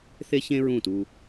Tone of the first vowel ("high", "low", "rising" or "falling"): high